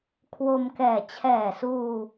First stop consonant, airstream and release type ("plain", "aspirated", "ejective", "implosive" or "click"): aspirated